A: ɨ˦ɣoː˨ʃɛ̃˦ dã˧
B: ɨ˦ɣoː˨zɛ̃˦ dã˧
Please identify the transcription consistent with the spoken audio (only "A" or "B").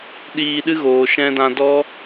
A